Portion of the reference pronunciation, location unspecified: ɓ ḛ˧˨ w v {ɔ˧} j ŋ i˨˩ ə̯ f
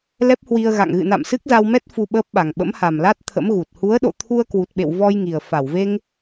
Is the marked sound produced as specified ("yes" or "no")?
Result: yes